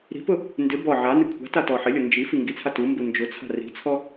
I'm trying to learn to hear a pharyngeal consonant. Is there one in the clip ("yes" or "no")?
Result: yes